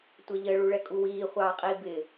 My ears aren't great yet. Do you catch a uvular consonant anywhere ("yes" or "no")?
yes